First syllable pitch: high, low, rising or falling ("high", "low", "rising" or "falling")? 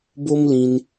high